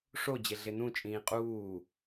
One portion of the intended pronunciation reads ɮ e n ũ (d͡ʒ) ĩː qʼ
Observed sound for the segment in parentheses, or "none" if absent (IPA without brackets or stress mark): t͡ʃʼ